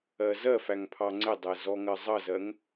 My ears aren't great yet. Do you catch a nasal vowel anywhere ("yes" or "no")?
no